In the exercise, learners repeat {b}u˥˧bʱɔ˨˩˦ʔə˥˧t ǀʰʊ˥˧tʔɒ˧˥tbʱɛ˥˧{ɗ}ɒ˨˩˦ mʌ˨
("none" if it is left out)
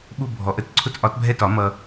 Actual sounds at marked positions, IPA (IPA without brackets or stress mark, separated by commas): ɓ, t